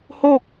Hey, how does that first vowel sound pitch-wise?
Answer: falling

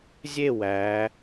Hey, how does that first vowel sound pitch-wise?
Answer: falling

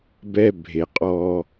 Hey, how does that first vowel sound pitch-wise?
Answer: high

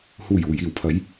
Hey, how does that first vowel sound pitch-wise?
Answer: low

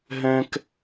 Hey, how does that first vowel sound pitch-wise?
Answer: high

